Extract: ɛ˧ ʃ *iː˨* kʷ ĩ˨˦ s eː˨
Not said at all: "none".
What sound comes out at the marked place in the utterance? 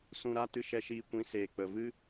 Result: iː˧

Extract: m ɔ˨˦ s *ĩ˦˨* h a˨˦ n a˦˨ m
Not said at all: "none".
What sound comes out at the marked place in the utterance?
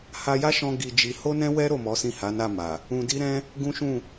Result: ĩ˦˨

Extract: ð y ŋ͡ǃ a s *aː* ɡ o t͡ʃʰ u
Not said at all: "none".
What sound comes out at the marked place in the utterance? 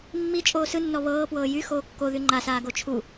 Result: aː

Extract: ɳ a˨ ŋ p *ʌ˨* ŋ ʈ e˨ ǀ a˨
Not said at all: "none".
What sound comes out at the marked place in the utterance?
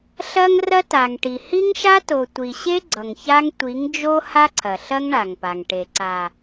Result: a˨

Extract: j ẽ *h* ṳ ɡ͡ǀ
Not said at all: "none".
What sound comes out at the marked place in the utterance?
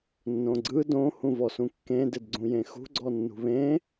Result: x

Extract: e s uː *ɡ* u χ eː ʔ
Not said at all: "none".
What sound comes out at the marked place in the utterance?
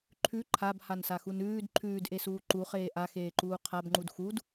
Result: ǃ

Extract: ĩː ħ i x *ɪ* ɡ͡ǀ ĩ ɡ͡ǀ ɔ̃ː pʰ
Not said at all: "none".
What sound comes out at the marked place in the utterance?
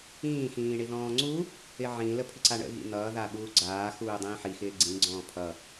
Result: ɪː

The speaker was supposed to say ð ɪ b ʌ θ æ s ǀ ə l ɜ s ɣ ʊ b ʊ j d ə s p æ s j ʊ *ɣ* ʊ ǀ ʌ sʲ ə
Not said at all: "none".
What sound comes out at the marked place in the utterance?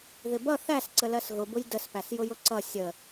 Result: j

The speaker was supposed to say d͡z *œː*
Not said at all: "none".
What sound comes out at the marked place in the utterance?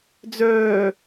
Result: œː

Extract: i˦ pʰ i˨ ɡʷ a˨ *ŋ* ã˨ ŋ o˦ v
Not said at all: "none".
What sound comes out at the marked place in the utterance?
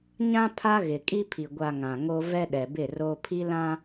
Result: ŋ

